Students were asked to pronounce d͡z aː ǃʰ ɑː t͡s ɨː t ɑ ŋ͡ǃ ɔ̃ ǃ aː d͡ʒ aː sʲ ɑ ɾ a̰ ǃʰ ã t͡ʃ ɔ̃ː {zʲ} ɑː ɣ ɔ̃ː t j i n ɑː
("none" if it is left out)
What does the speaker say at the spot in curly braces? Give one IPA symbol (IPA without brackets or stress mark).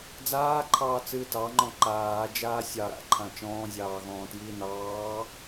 zʲ